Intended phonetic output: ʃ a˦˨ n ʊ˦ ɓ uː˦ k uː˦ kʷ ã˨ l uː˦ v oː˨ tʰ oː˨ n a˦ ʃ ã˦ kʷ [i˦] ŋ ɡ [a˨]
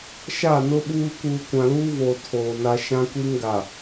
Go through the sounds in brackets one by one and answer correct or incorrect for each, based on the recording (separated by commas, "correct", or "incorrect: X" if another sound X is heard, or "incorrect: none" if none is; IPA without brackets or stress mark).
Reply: correct, correct